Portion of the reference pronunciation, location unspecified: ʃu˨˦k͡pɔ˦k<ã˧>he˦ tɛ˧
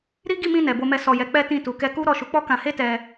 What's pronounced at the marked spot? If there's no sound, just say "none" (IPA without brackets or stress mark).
ã˧